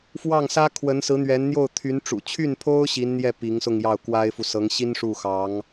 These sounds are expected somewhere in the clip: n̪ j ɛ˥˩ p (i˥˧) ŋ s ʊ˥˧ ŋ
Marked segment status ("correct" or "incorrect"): incorrect